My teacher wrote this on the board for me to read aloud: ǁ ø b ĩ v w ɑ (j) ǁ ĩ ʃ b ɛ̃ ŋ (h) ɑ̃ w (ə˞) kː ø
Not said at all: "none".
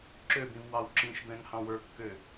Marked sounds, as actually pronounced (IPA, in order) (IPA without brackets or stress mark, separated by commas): w, h, ə˞